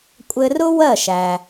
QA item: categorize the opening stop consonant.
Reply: ejective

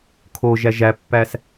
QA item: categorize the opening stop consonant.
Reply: aspirated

